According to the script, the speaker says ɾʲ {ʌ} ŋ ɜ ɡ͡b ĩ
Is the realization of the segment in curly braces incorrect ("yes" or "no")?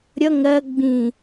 no